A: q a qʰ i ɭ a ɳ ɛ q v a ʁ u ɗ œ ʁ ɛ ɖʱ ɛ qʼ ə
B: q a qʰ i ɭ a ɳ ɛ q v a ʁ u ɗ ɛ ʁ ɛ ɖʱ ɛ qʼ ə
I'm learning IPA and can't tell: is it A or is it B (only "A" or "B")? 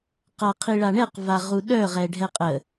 A